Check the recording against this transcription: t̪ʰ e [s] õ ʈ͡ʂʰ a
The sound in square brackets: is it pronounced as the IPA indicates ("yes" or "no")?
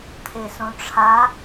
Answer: yes